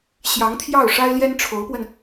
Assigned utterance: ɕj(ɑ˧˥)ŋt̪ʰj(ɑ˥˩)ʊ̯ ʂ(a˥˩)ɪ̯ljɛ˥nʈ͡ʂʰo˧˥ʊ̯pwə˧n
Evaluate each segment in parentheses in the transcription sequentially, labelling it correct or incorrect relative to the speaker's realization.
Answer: correct, correct, incorrect: a˥

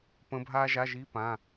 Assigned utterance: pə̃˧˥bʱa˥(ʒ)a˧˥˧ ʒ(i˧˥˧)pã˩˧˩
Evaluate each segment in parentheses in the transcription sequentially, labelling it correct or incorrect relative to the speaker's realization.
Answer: correct, correct

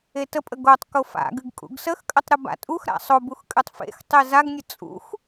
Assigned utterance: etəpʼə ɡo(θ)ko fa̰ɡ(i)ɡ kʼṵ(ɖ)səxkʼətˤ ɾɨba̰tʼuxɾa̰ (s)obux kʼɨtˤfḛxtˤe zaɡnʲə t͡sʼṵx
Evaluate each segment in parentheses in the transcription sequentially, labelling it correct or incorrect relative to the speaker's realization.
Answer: incorrect: tˤ, incorrect: ɨ, incorrect: ɡ, incorrect: sˤ

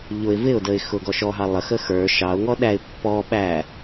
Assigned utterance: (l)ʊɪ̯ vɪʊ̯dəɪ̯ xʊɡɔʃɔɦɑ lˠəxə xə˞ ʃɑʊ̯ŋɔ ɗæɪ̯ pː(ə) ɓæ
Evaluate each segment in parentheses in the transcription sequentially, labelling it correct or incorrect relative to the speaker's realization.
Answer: incorrect: ʎ, incorrect: ɔ

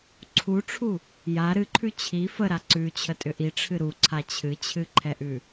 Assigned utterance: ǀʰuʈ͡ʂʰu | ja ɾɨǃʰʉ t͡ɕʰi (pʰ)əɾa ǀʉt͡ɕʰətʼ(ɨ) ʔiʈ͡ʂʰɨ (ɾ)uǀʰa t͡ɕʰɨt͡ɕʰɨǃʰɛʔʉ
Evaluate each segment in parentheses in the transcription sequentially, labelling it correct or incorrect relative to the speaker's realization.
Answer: incorrect: f, incorrect: ʏ, correct

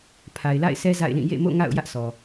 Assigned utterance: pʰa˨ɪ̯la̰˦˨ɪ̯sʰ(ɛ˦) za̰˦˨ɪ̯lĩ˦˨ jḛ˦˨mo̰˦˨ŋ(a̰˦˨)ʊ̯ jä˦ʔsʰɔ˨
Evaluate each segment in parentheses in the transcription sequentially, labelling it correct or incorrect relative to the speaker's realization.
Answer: correct, correct

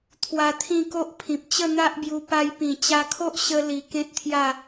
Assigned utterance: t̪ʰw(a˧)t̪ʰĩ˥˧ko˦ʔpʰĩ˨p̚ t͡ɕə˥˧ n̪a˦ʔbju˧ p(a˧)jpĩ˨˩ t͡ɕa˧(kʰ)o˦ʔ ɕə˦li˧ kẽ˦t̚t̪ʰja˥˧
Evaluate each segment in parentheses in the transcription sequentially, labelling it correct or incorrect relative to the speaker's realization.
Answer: correct, correct, correct

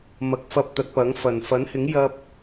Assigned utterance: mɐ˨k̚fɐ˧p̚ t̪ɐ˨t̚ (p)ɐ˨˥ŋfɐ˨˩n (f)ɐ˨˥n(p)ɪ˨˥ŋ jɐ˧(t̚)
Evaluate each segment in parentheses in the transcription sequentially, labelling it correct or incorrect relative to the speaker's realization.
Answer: correct, correct, incorrect: h, incorrect: p̚

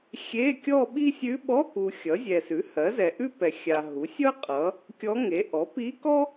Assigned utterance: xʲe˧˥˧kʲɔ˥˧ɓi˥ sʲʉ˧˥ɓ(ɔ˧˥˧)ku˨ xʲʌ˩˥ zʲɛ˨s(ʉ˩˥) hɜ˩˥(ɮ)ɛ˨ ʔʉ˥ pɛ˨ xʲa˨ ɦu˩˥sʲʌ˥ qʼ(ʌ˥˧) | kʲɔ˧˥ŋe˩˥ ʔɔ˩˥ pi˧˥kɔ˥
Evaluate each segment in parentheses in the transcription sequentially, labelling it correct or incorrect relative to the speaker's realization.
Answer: correct, correct, incorrect: z, incorrect: ʌ˩˥

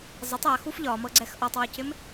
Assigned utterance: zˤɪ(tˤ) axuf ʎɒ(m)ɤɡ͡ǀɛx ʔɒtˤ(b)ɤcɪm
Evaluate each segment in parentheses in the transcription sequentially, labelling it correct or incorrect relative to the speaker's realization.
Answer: correct, correct, incorrect: w

